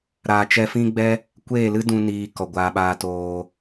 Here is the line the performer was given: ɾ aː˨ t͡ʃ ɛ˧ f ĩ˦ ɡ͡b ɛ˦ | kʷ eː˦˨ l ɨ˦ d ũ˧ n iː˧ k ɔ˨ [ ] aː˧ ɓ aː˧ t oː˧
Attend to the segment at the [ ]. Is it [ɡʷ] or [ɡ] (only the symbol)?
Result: ɡʷ